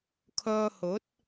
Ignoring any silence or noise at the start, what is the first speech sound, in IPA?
kʰ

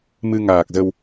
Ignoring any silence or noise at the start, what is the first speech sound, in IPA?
m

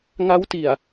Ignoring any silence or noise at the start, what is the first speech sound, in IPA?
ŋ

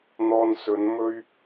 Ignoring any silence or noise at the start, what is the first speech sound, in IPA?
n̪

